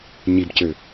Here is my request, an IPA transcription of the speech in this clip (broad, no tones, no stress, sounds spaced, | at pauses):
ɲ i b c ø